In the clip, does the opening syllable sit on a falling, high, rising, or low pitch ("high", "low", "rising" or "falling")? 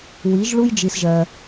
rising